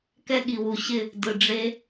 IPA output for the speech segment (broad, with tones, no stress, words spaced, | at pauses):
kɛ˧ɠi˨wu˨ɕɪ˦˨ | dɯ˨ɖ͡ʐe˧